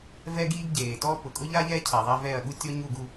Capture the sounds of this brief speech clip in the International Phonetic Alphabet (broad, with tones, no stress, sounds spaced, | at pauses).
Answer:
v ɛ˦ ɡ iː˦ ɡ ɟ eː˨ t ɔ˦ p ʊ˨ kʼ ʊ˦ ʎ a˦ ʎ ɛ˦ cʰ a˨ ðˤ a˦ v ɛ˦˨ ɐ̯ ɠ u˦ tʲ ɔ˦ ɲ u˦˨ ɡ u˦